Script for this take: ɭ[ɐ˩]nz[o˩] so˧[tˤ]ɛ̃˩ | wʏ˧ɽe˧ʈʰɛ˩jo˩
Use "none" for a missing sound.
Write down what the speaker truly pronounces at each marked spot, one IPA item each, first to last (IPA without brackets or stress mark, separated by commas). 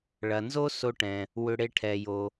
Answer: ɐ˩, o˥, ʈ